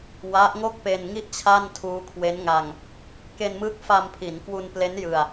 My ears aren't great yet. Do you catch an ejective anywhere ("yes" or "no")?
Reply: no